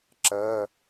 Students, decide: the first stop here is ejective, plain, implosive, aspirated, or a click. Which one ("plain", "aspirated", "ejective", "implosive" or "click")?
click